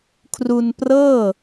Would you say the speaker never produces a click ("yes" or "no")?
yes